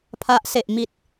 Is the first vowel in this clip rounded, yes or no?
no